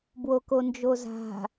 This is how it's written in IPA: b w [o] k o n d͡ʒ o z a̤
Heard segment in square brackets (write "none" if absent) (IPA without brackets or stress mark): o